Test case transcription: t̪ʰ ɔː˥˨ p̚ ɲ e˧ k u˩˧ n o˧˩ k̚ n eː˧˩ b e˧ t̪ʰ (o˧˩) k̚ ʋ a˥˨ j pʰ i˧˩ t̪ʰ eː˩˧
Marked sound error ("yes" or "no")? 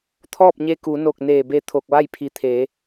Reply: no